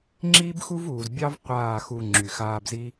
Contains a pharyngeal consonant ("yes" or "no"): no